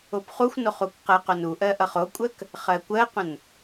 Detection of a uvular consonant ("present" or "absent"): present